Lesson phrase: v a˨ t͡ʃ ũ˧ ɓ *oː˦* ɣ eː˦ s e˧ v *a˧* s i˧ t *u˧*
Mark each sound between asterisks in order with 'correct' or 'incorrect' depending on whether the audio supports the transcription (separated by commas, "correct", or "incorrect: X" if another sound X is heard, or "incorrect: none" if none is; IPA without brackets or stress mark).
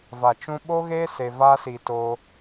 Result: incorrect: o˦, incorrect: a˦, incorrect: o˧